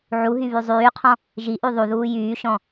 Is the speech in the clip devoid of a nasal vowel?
no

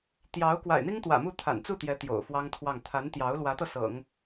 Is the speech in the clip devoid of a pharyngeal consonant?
yes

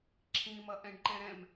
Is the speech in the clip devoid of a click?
no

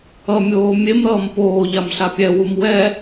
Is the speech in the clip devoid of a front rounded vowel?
yes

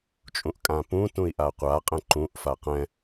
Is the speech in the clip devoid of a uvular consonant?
no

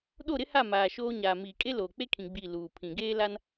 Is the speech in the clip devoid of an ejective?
no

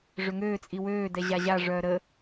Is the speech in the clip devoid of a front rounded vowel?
no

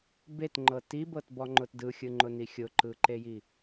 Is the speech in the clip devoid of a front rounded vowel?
yes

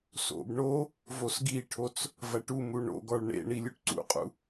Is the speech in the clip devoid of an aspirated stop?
no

